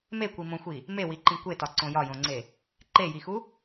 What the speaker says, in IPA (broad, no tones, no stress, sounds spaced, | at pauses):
m e kʷ i m õ xʷ i | m e w i ǃ ĩ kʷ e t ɒ ǀ õ j ɒ j õ ŋ͡ǀ e | ǃ e j i x u